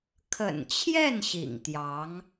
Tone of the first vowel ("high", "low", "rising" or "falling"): low